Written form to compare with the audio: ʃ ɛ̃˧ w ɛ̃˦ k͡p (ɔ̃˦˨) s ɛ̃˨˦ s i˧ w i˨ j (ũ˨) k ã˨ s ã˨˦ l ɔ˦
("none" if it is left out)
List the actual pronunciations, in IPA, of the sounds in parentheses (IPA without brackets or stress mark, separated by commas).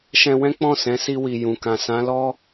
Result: ɔ̃˦˨, ũ˨